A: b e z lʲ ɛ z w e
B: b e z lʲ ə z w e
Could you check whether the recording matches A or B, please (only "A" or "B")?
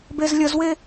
B